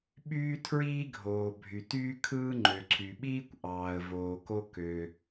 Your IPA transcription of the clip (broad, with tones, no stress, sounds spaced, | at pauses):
ɓ yː˥ tʰ ɹ iː˥ ɡʱ oː˩ bʱ y˩ t yː˥ kʰ ɯː˥ ŋ͡ǃ ø˩ ǀʰ y˩ ɓ iː˥ kʷ ʔ ɑː˩ ə̯ v oː˩ k o˥ k ø˩